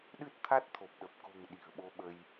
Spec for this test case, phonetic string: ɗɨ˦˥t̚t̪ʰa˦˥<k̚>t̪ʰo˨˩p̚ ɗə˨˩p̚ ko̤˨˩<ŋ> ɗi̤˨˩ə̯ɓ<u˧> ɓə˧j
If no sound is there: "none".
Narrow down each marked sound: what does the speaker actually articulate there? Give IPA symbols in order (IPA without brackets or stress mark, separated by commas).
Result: t̚, ŋ, o˧